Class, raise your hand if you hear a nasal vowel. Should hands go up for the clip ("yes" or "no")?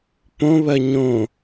yes